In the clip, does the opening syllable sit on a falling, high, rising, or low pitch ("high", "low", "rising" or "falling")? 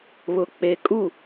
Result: low